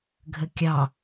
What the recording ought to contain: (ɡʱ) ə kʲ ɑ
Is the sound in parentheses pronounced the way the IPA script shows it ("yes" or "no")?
yes